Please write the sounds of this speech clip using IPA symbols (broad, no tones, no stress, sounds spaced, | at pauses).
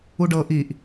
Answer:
u ɖ ɤ ʔ i ʔ